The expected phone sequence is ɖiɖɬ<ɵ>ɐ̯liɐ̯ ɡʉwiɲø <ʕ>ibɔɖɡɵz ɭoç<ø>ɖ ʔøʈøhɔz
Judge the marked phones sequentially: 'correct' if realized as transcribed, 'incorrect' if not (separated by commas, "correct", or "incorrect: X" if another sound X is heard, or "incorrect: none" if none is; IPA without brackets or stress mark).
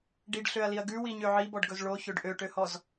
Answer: incorrect: ø, correct, correct